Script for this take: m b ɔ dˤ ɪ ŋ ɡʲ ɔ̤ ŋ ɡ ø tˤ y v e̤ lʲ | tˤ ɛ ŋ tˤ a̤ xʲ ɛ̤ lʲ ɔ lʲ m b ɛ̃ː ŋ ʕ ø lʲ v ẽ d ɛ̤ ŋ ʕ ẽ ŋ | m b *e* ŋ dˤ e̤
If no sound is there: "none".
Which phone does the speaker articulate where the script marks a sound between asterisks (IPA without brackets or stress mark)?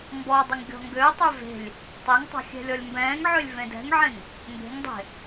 e̤